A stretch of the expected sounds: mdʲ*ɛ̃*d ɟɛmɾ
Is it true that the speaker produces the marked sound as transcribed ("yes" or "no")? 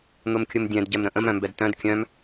yes